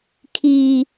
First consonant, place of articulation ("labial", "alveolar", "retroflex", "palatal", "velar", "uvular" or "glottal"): velar